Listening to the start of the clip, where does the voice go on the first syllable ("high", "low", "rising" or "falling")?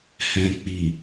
low